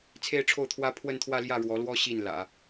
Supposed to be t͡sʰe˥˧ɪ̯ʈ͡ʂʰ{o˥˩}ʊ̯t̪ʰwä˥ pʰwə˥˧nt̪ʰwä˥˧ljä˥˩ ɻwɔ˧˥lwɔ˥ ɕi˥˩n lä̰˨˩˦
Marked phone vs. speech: correct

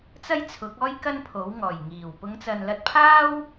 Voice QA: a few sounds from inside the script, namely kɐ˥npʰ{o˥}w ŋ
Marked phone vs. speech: incorrect: o˨˥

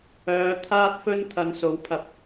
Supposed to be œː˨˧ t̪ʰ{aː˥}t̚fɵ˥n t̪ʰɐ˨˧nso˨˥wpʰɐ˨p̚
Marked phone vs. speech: correct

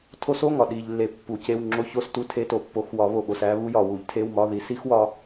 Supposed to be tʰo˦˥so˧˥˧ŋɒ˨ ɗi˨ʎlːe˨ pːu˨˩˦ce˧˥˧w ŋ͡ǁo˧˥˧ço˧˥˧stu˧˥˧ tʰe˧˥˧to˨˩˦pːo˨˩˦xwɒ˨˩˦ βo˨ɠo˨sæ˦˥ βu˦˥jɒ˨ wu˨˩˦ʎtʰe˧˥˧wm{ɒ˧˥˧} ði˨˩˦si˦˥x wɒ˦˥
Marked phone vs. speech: correct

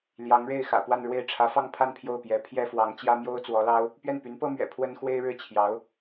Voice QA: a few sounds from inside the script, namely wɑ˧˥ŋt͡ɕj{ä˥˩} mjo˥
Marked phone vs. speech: incorrect: ä˥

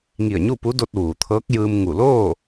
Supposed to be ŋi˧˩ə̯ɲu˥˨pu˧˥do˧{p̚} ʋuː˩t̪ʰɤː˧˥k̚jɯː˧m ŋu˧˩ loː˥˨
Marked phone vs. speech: incorrect: t̚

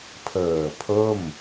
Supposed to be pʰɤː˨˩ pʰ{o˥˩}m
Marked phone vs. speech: correct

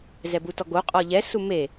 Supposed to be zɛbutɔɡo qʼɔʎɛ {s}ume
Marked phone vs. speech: correct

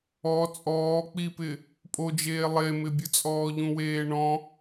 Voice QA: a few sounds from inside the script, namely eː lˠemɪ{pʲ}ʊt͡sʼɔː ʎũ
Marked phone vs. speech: incorrect: bʲ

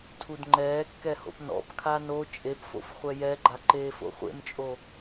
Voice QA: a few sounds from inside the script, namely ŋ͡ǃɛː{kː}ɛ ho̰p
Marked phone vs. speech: correct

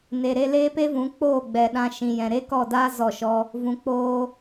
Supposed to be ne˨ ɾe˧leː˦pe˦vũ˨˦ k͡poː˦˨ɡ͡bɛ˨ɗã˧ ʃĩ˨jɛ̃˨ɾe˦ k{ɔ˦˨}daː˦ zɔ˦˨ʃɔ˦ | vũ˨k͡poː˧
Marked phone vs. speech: correct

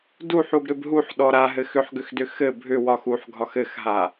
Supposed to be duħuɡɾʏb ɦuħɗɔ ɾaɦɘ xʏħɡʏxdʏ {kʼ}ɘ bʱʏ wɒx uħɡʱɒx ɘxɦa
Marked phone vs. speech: incorrect: x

